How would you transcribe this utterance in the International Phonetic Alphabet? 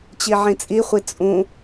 t͡ɕ i ʕ ĩ t͡sʼ i χʷ i t͡sʼ ũ

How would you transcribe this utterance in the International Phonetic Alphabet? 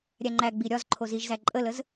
ɾʲ æ ŋ͡ǃ æ ɡ͡b i ɾʲ ɒ z ǃʰ o z i ʒ z æ ǃʼ ə l ə z

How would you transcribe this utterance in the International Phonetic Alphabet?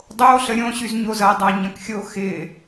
dˤ o ɬ ə ɾʲ õ ɕ y z ɲ o z ɐ dˤ a ɲ ɐ̃ k xʲ o x ɪ

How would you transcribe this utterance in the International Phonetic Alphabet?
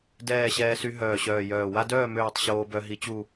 d ɛː˥˨ ɕ ɛː˦ s y˦ ɦ œː˧˩ ɕ œː˧˩ j œː˧˩ w a˦ d œː˥˨ m øː˥˨ tˤ ɕ oː˦ b œ˦ ɦ i˦ t͡ɕ u˥˨

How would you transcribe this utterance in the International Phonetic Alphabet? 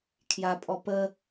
kʰ j a pʼ ɔ p ə

